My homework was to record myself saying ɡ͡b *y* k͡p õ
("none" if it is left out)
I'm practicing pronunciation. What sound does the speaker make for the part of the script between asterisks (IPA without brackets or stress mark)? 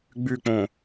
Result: y